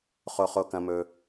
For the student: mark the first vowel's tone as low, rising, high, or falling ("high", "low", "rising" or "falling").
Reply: high